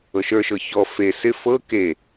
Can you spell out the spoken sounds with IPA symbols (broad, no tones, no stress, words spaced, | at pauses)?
ɤʃə˞ʃɤ çɔ fe sɪ fɤ ke